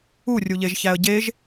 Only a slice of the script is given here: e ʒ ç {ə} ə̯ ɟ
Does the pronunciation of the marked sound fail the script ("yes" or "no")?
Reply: yes